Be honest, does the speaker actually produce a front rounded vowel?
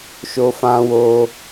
no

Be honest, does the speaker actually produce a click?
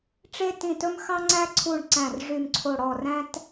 yes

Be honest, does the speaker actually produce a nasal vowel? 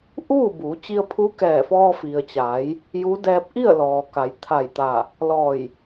no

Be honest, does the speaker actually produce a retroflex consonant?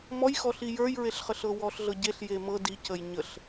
no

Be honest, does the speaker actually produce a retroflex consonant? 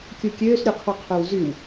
no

